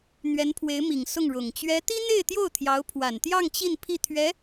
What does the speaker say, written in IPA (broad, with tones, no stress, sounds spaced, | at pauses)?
n̪ ɥ ɛ˧˥ n pʰ w e˧˥ ɪ̯ m i˨˩ ŋ s ʊ˥˩ ŋ ɻ ʊ˨˩ ŋ t͡ɕ ɥ ɛ˧˥ t̪ i˥ n̪ e˥˧ ɪ̯ t̪ j o˥˩ ʊ̯ t̪ʰ j ɑ˧˥ ʊ̯ pʰ w a˨˩ n t̪ j ɑ˥˧ ŋ t͡ɕ i˥˧ n pʰ i˥˩ t̪ʰ ɥ ɛ˧˥